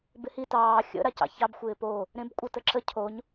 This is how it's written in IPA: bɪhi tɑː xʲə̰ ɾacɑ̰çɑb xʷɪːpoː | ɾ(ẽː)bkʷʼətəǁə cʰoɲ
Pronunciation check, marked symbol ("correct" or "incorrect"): incorrect